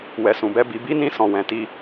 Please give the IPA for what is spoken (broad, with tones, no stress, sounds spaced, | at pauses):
w ɛ˨ s ũ˨ b ɛ˧ b i˧ b i˦ n ĩ˦ s ɔ̃˧ w ɛ̃˧ t i˦